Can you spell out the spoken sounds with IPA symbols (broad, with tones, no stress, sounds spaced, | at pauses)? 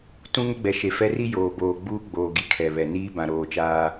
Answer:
t ũ˦ ŋ ʊ˦ ɡ͡b ɛ˨ ʃ e˨ f ɛ˦ r i˦ j oː˨ b oː˨ ɡ͡b uː˦ ɡ͡b oː˨ ɡ i˨ kʰ ɛ˨ β ɛ˨ n iː˦ b ã˨ ɾ oː˨ t͡ʃ aː˦